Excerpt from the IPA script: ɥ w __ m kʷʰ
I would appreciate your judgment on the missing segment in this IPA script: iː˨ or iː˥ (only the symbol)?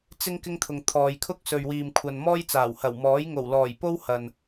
iː˨